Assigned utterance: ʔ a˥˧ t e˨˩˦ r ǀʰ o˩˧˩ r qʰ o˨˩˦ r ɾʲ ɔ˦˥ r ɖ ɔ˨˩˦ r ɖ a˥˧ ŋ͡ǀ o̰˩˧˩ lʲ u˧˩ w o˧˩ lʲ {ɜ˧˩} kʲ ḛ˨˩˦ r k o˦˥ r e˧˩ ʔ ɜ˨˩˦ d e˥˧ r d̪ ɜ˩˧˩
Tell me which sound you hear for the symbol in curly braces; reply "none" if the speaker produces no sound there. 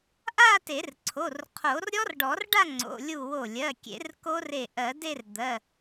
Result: ɜ˩˧˩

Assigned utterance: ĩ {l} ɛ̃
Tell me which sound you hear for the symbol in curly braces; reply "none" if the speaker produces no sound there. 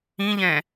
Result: ʎ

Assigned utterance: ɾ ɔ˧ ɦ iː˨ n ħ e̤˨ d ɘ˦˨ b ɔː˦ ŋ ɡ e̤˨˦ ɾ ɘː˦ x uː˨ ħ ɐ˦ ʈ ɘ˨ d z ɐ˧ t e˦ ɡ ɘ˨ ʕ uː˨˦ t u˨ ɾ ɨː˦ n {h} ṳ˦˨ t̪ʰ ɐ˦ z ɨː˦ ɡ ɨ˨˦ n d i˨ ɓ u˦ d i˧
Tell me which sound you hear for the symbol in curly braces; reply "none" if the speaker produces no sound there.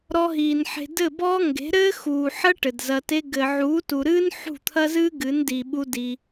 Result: ħ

